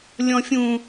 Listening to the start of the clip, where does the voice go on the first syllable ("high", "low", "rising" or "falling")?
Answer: high